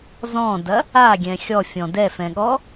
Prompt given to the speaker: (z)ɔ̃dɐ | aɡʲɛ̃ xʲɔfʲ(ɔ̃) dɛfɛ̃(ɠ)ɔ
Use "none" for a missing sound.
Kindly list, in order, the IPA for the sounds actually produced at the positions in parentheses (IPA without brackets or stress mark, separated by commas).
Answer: z, ɔ̃, ɠ